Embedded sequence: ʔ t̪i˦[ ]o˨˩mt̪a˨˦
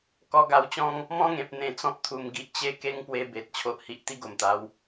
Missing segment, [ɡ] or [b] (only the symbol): ɡ